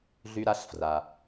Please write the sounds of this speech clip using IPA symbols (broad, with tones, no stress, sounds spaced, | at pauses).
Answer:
ɮ y˨ ɾ a˨ ɬ f r a˩